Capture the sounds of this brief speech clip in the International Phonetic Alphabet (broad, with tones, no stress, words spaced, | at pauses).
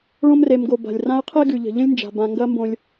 ɭõ˦mre˨mɡo˨ ba̤˩lʲ rã˦ə̯qʰe˥ɡʉ˩ ʎə̤˩ʎə̃˥lʲnd͡ʒa̤˩ bã˨ŋɡɐ˦mbõ˨lʲ